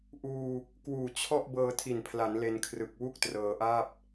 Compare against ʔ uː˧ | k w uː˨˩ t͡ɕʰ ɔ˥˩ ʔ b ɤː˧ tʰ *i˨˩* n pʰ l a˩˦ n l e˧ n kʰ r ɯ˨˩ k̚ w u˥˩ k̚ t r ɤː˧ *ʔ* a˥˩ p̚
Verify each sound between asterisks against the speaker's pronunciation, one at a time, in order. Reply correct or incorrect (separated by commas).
correct, correct